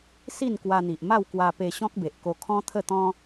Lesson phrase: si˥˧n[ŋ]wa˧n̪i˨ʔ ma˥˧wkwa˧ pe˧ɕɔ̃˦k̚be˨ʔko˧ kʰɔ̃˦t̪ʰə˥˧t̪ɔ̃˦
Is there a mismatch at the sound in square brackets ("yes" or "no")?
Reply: yes